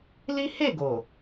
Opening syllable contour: high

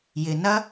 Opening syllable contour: low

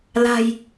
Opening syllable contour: low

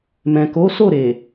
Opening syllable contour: low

